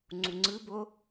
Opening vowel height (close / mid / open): close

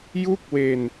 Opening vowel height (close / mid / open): close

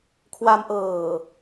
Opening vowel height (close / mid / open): open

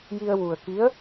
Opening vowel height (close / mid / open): close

